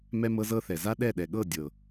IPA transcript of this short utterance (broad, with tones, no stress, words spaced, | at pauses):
mɛ˦mɤ˦zɤ˦θɛ˨ za˦ɗɛ˦˨ɗɛ˨ɠɤ˦˨ dʲɤ˨